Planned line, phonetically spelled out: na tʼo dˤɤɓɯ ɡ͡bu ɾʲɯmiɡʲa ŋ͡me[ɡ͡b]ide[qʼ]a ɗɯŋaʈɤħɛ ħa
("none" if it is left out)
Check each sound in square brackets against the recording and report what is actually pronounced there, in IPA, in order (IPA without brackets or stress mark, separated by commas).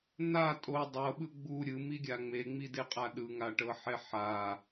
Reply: ŋ͡m, qʼ